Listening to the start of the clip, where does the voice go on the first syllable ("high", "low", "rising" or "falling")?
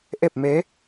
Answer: falling